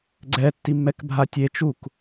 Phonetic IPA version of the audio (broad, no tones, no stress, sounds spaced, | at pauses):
ɡ͡ǀ ɛ tː i mː ɛ k bʱ a tʲ e t͡ʃ u k